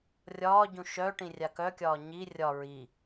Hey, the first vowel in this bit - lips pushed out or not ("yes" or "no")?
yes